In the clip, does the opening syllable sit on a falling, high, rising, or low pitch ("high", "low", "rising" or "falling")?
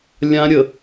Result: high